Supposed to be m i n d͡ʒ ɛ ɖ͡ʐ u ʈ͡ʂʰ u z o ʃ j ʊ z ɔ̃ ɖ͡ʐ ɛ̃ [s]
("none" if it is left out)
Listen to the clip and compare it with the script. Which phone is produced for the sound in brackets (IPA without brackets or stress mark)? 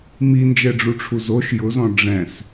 s